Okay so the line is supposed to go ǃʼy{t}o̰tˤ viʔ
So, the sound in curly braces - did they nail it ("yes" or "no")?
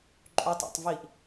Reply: no